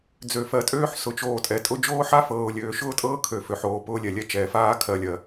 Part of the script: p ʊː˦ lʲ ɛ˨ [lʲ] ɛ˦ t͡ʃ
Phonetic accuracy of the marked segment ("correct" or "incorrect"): correct